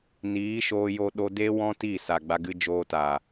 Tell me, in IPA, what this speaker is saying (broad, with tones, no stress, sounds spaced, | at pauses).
n iː˨˦ ʃ oː˧ j o˧ ɗ o˧ d e˦ w ɔ̃˦ t i˦˨ s a˨ ɡ͡b a˧ ɡ ɨ˧ d͡ʒ oː˧ t aː˨